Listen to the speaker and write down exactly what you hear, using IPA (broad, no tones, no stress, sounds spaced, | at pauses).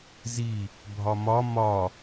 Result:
z i | bʱ ɒ m ɒ m ɒ